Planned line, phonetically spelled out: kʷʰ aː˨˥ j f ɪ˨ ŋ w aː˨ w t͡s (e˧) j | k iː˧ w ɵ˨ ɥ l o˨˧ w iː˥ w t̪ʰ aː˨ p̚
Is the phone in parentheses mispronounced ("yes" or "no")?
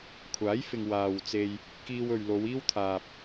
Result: no